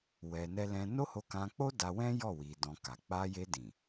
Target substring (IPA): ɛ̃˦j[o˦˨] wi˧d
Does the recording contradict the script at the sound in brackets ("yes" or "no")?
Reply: yes